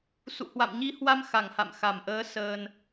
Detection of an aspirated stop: absent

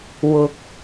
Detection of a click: absent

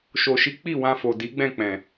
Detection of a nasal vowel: present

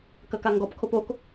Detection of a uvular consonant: absent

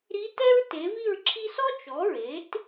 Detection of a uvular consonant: absent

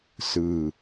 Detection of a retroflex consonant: absent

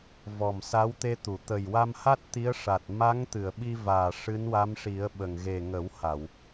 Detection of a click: absent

